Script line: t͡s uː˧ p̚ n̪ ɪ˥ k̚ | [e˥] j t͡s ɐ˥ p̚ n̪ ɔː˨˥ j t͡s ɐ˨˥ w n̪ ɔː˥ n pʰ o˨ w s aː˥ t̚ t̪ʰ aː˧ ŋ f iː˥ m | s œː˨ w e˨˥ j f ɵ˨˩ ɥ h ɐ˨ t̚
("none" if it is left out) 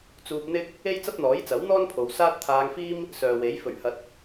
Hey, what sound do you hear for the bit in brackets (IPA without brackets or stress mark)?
e˥